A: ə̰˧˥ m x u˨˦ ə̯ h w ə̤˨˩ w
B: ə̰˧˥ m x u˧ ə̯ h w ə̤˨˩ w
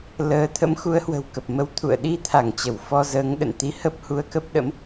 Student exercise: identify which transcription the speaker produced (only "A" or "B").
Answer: A